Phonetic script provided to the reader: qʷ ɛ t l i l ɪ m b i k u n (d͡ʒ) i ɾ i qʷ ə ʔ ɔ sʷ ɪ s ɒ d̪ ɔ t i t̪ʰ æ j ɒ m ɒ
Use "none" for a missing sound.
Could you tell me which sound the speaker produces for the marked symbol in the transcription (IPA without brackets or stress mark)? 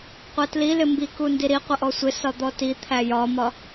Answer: d